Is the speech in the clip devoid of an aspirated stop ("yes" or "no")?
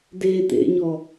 yes